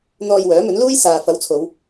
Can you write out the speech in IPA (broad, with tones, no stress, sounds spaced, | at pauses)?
n̪ ɔː˧ j w œː˨˥ m ɵ˨˥ n l uː˥ j s aː˨ f ɐ˨˥ w t͡sʰ o˨˧ w